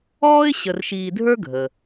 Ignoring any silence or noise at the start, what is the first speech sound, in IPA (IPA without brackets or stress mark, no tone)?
ɔː